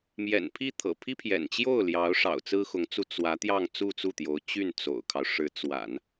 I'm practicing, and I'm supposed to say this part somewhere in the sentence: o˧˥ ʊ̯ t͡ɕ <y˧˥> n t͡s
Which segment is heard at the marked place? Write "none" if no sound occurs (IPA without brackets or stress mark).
y˥˩